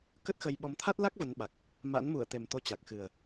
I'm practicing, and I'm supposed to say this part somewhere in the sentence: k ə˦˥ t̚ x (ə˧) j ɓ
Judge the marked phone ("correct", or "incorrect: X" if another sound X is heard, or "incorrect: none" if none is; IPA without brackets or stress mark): correct